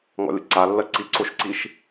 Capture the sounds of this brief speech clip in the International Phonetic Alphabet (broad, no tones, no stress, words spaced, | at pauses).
ŋɔ̰lʲə̰ǀalːɜ ǀiǀoʃǀiʃ